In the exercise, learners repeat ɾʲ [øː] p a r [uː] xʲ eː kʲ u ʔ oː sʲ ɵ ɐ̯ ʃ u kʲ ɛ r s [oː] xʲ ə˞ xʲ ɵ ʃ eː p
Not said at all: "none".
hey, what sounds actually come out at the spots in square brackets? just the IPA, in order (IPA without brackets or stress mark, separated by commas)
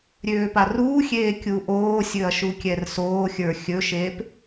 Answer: øː, uː, oː